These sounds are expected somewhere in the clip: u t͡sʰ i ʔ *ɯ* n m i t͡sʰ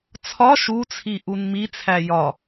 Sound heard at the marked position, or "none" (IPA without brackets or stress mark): u